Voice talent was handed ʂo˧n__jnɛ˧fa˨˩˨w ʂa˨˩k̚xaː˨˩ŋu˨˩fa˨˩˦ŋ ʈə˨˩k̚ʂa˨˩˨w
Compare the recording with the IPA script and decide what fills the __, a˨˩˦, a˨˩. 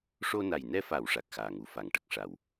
a˨˩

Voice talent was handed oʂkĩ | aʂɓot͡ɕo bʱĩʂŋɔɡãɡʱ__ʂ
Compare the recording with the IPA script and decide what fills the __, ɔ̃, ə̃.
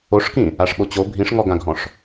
ɔ̃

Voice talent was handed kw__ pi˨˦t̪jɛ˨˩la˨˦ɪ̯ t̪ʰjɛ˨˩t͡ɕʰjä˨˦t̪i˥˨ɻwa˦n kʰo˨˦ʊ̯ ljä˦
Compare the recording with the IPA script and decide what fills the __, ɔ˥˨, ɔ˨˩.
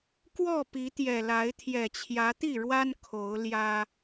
ɔ˥˨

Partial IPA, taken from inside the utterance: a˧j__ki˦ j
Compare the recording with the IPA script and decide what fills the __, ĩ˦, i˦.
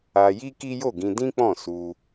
i˦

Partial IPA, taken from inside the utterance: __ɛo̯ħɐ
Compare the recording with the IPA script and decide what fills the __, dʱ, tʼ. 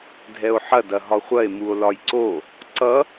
dʱ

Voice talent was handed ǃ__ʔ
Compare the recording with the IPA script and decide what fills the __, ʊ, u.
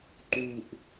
u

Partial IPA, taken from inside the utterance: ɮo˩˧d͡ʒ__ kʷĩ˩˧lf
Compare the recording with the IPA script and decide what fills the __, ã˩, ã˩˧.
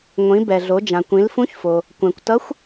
ã˩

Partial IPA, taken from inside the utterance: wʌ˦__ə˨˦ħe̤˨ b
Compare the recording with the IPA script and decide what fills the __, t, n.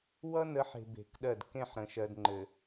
n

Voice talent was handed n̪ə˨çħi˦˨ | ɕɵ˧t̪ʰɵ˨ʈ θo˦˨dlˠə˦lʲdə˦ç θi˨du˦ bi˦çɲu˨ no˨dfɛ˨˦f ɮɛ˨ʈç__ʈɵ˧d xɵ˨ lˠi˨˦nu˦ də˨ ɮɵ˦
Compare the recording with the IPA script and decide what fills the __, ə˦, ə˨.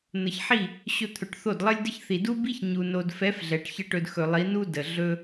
ə˦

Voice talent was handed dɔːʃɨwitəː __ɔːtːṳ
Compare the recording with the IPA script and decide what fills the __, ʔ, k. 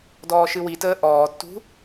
ʔ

